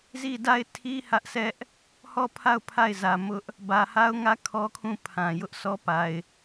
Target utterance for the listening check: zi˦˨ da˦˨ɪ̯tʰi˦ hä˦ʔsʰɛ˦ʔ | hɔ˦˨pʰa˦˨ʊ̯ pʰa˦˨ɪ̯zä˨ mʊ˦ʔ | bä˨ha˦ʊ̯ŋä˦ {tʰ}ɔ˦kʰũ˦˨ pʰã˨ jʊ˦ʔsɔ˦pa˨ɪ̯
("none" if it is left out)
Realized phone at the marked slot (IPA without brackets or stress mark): kʰ